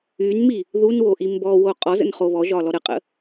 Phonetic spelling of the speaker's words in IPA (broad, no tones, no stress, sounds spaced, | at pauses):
y n m i | ð u n w o ʔ i m b ɔ w o qʼ ɔ z ə̰ n χ o β ɔ ʒ ɒ l ɔ ɾ ə qʼ ə̰